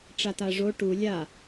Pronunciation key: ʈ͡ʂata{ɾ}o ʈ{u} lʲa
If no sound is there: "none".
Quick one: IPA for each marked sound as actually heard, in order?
ʐ, u

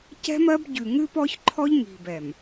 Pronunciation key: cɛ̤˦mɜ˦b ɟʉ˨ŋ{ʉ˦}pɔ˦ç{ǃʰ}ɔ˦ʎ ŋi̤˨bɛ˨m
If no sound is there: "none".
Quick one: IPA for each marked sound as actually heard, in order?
ʉ˦, ǃʰ

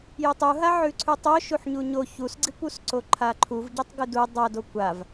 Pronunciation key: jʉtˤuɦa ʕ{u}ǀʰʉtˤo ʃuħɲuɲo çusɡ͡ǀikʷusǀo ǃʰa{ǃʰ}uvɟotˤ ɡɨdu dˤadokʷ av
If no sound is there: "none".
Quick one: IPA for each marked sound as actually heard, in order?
ʉ, ǃʰ

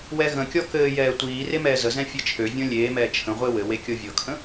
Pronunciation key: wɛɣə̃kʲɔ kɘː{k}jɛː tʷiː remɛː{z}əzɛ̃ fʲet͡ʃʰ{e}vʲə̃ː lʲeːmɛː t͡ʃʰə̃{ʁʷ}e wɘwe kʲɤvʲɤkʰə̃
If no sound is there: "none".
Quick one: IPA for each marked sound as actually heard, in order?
none, z, ø, ʁʷ

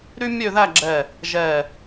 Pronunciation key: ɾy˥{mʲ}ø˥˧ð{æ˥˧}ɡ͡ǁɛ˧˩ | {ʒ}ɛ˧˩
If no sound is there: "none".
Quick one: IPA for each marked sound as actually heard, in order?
mʲ, æ˥˧, ʒ

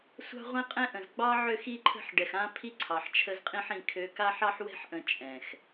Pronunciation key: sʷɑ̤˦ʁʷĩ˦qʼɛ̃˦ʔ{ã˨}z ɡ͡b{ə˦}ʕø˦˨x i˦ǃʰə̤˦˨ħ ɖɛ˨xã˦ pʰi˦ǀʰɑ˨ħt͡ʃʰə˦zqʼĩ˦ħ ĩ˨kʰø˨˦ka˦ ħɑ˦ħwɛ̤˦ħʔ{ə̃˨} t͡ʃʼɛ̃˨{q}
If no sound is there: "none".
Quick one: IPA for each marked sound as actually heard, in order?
ə̃˨, ɑ˦, ə̃˨, x

